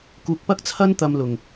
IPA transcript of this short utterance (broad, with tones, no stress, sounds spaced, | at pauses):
k uː˧ k̚ p ɐ˥ k̚ t͡sʰ ɐ˥ n t̪ ɐ˧ m l ʊ˨ ŋ